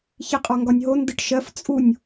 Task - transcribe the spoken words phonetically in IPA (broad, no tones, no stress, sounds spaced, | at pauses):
ç i qʼ ɒ ŋ ɡ ɒ nʲ ɦ o n d ɯ ʈ ʃ ɜ f t͡sʼ u nʲ